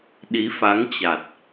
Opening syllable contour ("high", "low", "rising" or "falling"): rising